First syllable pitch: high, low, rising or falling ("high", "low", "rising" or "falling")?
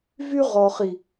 high